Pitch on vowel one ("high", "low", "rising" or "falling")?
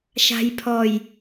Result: low